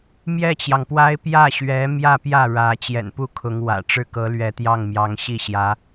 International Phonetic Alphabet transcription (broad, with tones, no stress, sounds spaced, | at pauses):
m j ɛ˥˩ t͡ɕ j ɑ˩ ŋ p w a˥ ɪ̯ p j ä˥˩ ɕ ɥ ɛ˧˥ m j ä˥˧ p j ä˥˩ ɻ ä˧˥ t͡ɕ j ɛ̰˨˩ n p u˥˩ kʰ ʊ˧˥ ŋ w ä̰˨˩ ʈ͡ʂ ɻ̩˥˩ k ɤ˧˥ l ɥ ɛ˧˥ t̪ j ɑ˥˩ ŋ m j ɑ˧˥ ŋ ɕ i˥˩ ɕ j ä˧˥